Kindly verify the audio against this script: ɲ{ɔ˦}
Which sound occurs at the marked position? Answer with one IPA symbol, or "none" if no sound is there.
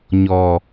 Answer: ɔ˨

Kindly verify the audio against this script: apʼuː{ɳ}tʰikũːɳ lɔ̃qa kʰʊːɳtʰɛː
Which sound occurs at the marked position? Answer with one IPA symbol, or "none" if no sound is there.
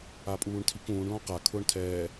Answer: ɳ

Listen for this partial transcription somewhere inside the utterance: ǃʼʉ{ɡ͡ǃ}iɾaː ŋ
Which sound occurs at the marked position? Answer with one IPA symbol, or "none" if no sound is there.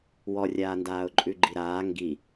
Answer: ɡ͡ǃ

